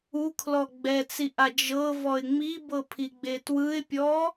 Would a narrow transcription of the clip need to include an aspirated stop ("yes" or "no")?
yes